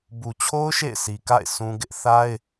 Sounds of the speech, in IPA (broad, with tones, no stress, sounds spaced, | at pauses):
b u˨ t͡ɕʰ o˦ ʊ̯ ʃ ḛ˦˨ ɪ̯ sʰ i˨ k a̰˦˨ ɪ̯ s ũ˦ ɡ ɪ˦ ʔ θ a˦ ɪ̯